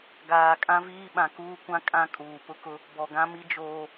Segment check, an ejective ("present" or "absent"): present